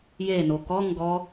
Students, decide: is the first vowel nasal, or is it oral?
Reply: oral